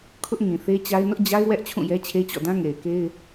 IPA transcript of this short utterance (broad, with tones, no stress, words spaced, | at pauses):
kʰʊ˦ʔŋĩ˨θe˦t͡ɕa˦ɪ̯ nʊ˦ʔd͡ʑa˦ɪ̯ wɛ˦ʔ t͡ɕʰũ˦˨jɛ˦t͡ɕʰe˦t͡ɕɔ̰˦˨ dã˦ŋe˨ɪ̯ke˦ɪ̯